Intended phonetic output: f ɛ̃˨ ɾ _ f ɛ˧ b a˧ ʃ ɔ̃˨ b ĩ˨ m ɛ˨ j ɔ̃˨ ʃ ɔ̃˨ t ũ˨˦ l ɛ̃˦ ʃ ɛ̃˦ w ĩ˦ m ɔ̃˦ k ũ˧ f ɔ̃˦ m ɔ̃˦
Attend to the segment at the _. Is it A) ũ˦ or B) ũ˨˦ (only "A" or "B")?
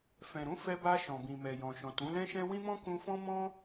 B